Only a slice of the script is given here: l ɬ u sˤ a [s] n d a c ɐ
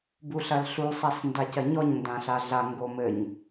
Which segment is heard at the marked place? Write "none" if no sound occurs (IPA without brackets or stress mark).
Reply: s